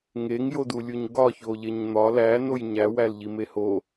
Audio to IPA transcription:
ŋeŋjodulʲuɲ ɡɒ çoʎeɲn̪ɒ læ nojɲæ wælʎimeho

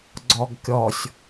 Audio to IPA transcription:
ɡ͡ǀɔɡkʲɔsʲ

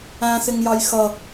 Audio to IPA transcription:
æ̃ sɪŋjɑjxʌ

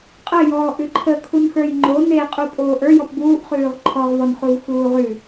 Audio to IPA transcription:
qʼəjɔːʔ ʉǃʰə kʰunxə˞jŋ͡ǃo neqʼu pʼoːʔə˞ jɔpbuːʔχʉːʁ ǃʰɔʁvɔnχuv xuːʁʉ

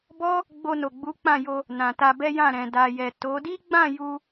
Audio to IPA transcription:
bɔ˦ | ɡ͡bo˧no˨ɡ͡bu˨˦ k͡pã˦˨jo˧ | nã˨ta˧bɛ˦jã˦˨ ɾɛ̃˨da˨jɛ˨ to˨˦ di˦ɡ͡bã˦˨ ju˧

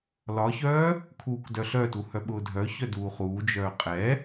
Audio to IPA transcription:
lɒçœː | kʰuːkdœɬœtu hœɓʊːdʱœçœ duːχuːd͡ʒœː qʼɛ

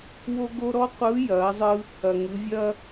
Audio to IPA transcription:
wo˥ɡo˥ ɾɔ˥qʷɯ˧˥jɐː˩˧zˤɯ˧ | ɐ˩ŋɯ˩˧vʲɐː˥

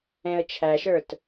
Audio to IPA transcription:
ɛ̃ə̯t͡ʃʰæʃə˞t

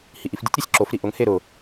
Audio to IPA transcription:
hiʔifdʲʊtʲ ɾisʲǁof ɾiʔʊŋ heɾʊ

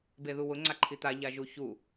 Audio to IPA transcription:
beðuwʊŋ͡ǀa ǃʰit̪a ʎaʒuçu

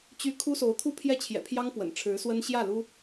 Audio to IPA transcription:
t͡ɕy˧˥ kʰu˥so˧˥ʊ̯ t̪ʰu˥˧pʰjɛ˥˩t͡ɕʰjɛ̰˨˩ pʰjɑ˥ŋ pwə̰˨˩nʈ͡ʂʰɻ̩˧˥swə˥n ɕjä˥˩lu˥

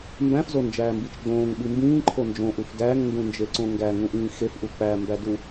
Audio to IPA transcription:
mbæ̃fzond͡ʒæːmbit͡ʃ ɡ͡bõːŋɓi mbĩːǃʰo nd͡ʒõʔuf dæŋndũnd͡ʒeǀõ ŋɡæŋũʔĩː xefʔu k͡pæmbædu

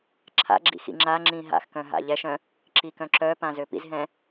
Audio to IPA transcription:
ǁʰa̰ɡ͡ǁḭ xḭŋ͡ǁaŋ͡ǁĩ ɦa̰xkœ̃ ɦa̰ʎɛʃœ̃ | ǁikœ̃ǁœpã zøpḭzɦɛ̃

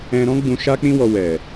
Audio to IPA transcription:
ɛ̃˧ɾɔ̃˦ ɡ͡bũ˧ʃa˦k͡pĩ˦wɔ˧ wɛ˨

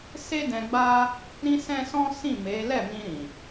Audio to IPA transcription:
se˦dɛ̃˧ ɡ͡ba˦ | ɾĩ˦sɛ̃˦sɔ̃˦sĩ˦˨ me˨˦ lɛ˦˨mĩ˧ɾĩ˨

